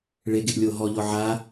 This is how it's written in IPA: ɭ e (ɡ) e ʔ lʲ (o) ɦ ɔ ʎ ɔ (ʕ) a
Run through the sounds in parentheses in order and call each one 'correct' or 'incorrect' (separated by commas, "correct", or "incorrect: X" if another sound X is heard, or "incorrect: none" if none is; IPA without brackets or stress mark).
correct, correct, correct